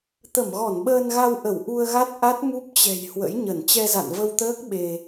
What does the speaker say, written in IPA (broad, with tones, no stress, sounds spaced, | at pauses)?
t̪ ə˧˩ m ɣ ɔ˧˩ n ɓ əː˧ n ɣ a˧ w ʔ ə˧˩ w ʔ u˧ ə̯ ɣ a˦˥ t̚ ʔ a˦˥ t̚ m u˦˥ p̚ t͡ɕ ɛ̤˨˩ j h w ə̰˧˥ j ɲ ə˧˩ n t͡ɕ ɛ˧ z a̰˧˨ n v ə˧ w t̪ əː˦˥ k̚ ɓ e˧